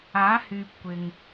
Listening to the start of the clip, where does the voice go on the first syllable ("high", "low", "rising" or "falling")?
rising